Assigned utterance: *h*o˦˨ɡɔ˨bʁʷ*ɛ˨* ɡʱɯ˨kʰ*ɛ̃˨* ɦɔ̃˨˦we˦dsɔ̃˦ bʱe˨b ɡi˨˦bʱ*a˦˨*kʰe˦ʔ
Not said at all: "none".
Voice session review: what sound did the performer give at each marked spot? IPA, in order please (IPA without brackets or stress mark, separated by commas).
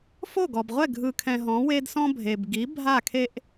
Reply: f, ɛ˦˨, ɛ̃˨, a˦˨